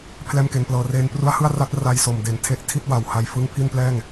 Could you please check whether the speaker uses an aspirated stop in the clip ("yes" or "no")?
yes